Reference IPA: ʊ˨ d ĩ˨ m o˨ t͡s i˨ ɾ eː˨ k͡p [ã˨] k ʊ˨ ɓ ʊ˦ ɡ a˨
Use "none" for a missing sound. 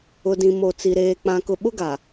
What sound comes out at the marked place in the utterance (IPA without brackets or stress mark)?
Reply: ã˨